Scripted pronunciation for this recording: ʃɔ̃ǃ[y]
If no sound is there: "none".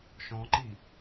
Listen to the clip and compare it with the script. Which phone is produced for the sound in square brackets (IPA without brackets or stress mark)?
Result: i